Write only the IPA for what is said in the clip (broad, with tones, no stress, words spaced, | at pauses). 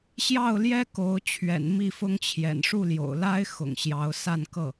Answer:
ɕjɑ˥˩ʊ̯ljɛ˥ ko˧˥ʊ̯ t͡ɕʰɥɛ̰˨˩nmi˥˩fʊ˥ŋt͡ɕʰjɛ̰˨˩n ʂu˥˩ljo̰˨˩ʊ̯la˥ɪ̯ xʊ̰˨˩ŋɕjɑ˧˥ʊ̯ sa˥˧nkɤ˥˩